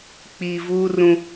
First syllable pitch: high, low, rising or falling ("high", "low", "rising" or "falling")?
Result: low